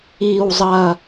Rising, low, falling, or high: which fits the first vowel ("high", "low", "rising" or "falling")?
low